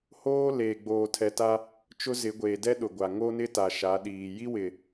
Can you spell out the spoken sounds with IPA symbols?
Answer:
h oː˦ l eː˨ ɡ͡b oː˨ tʰ ɛ˨ t a˦ | t͡ʃ ʊ˦ z ɪ˨˦ ɡʷ eː˨ d ɛ˦ ɗ ʊ˨ ɡʷ a˨ ŋ o˦ n ɪ˦ t a˨ ʃ a˨˦ ɗ iː˨ j i˦ w ɪ˨

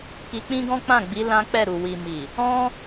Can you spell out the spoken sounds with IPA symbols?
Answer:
k i˧ k͡p ĩ˦ ɡ ɔ̃˦ k͡p ã˦˨ ɡ͡b i˨˦ l ã˦ k͡p ɛ˦˨ ɾ u˨ w i˨ m i˨ | ɔ̃˦

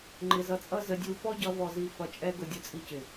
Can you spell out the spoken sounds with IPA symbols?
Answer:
ŋ͡ǃ ɪ˧ z ʌ˧ t͡sʼ ʌ˦ z ə˧ dʲ u˧ f ɔ˦ ɟ ʌ˧ v ɔ˨ z i˨ f ʌ˨ t͡ʃʼ ɛ˧ ɡ ʊ˧ dʲ ʊ˧ t͡sʼ i˧ c ɪ˨

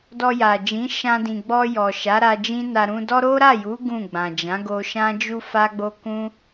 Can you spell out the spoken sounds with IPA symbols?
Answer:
d ɔ˧ j a˨ d͡ʒ ĩ˨˦ ʃ ã˧ d ĩ˨ ɡ͡b ɔ˧ j ɔ˨ ʃ a˨˦ ɾ a˧ d͡ʒ ĩ˦ n a˧ ɾ ũ˧ d ɔ˦ ɾ o˦ ɾ a˦˨ j u˨˦ ɡ ũ˦˨ ɡ͡b ã˨ d͡ʒ ã˨˦ ɡ o˧ ʃ ã˦ d͡ʒ u˦ f a˦ ɡ͡b o˦ k ũ˦

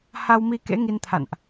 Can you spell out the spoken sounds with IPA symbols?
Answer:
h a˧ w m i˧ k ḛ˧˥ ŋ i˧ n t̪ʰ a̰˧˨ n ʔ

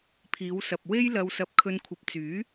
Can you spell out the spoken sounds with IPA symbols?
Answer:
pʰ iː˨˧ w s ɐ˨ p̚ w e˥ j l ɐ˧ w s ɐ˧ p̚ kʰ ɵ˧ n kʷʰ ɐ˨ p̚ t͡s yː˨˥

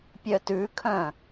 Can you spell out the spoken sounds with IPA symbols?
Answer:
pʲ œ t ʉ kʰ œ̃

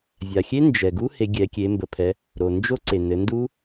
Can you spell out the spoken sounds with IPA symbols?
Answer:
vʲ a˩ xʲ e˦˥ n d͡ʒ ɛ˩ ɡ u˦˥ h e˩˧ ɡʲ ɛ˩˧ kʲ e˩˧ m b ə˩˧ pʰ ɛ˩˧ | ɾ o˩ n d͡ʒ o˦˥ ǀ e˩ n ɘ˩˧ n d u˦˥

